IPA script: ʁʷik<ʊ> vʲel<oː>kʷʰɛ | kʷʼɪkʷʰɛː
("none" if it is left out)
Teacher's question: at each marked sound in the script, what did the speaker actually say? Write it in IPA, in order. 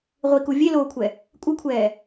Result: u, oː

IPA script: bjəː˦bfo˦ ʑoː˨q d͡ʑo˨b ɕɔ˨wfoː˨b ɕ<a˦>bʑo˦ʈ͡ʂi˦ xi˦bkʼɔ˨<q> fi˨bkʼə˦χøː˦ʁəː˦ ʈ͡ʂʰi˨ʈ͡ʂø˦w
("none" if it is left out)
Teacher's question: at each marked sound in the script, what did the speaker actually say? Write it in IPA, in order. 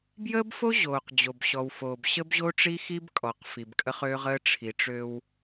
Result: ə˦, q

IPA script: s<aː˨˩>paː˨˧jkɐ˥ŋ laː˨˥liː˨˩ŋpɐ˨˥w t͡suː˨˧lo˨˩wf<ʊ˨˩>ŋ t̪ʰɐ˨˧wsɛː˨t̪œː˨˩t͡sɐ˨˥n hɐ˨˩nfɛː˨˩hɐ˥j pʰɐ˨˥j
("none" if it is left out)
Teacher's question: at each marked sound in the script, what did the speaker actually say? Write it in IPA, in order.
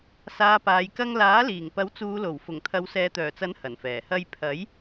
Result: aː˧, ʊ˨˩

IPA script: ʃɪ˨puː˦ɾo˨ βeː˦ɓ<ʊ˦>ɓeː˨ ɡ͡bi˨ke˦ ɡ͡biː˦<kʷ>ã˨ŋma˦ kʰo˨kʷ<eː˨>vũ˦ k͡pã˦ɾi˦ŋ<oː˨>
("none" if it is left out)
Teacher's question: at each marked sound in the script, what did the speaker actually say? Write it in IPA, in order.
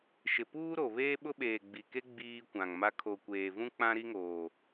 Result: ʊ˦, kʷ, eː˨, oː˨

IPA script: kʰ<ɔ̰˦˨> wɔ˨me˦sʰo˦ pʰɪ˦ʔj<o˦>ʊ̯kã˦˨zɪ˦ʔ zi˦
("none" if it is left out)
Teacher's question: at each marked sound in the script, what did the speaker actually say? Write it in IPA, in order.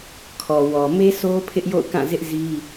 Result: ɔ˨, o̰˦˨

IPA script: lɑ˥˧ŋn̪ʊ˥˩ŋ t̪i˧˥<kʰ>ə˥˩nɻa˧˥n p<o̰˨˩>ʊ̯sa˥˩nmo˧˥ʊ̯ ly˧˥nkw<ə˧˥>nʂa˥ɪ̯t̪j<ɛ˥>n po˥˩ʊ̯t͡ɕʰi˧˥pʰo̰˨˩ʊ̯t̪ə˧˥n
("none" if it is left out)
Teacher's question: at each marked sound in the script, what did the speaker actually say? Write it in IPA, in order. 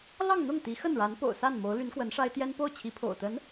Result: x, o̰˨˩, ə˧˥, ɛ˥

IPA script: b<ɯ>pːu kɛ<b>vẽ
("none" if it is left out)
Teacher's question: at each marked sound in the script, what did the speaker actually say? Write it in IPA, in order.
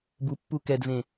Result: u, d

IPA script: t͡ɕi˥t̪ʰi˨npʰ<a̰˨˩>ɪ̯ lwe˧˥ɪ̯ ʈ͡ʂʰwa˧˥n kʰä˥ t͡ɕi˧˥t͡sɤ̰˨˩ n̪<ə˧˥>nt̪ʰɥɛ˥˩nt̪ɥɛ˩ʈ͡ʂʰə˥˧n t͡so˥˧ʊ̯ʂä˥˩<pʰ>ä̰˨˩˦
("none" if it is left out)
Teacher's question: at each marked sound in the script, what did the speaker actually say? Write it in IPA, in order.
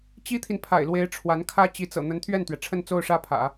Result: a̰˨˩, ə˧˥, pʰ

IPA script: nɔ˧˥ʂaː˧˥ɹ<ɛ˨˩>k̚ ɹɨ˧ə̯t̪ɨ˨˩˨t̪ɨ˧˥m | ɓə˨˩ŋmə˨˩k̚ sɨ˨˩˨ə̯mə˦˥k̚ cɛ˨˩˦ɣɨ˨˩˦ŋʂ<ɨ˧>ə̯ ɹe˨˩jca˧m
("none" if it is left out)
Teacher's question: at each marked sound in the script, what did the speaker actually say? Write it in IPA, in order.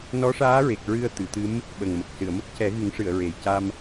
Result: e˨˩, ɨ˨˩˨

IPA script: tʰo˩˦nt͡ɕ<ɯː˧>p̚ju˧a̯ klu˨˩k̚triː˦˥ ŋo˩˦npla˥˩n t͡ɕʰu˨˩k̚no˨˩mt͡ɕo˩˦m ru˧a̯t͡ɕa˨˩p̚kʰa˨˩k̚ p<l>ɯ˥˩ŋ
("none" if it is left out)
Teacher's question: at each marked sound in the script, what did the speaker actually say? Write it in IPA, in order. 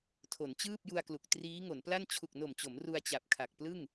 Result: ɯː˥˩, l

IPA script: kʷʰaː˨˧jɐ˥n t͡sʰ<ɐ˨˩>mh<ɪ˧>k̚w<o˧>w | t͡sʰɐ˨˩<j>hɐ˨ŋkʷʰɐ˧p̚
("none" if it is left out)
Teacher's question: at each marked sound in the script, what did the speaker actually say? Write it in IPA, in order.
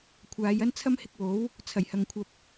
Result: ɐ˥, ɪ˧, o˨˥, j

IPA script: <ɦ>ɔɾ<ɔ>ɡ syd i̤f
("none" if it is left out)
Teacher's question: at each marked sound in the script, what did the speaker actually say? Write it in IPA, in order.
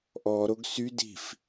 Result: ʔ, o

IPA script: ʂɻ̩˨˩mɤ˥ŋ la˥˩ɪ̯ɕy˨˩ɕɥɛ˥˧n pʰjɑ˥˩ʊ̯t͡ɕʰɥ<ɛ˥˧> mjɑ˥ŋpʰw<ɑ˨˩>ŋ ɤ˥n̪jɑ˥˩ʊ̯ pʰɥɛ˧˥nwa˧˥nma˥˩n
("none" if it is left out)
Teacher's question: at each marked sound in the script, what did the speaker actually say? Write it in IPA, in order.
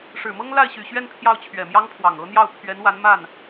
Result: ɛ˨˩, ɑ˨˩

